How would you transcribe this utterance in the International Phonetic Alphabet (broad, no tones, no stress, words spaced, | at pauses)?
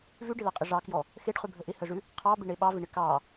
vʉɖɪlɑqʼɪ ʐɑkjɔ | xeɖχʉbʱə ʔɪhəʐʉ | qʰɑbɪɳe ɓɑvɪɳɪ kɑ